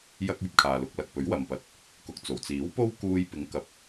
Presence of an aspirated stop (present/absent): present